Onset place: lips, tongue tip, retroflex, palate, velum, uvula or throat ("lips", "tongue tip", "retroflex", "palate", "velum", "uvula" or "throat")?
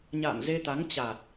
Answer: palate